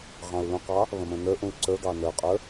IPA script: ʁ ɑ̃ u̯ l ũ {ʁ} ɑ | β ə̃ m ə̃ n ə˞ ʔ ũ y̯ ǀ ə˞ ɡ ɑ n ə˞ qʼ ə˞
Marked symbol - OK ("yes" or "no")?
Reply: no